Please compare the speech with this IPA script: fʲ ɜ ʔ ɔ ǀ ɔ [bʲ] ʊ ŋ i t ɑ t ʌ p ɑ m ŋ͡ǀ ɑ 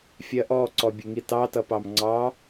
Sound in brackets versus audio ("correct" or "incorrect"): correct